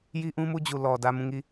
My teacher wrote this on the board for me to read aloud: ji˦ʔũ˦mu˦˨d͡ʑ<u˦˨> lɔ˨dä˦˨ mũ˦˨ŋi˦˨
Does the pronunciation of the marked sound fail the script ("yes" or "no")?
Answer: yes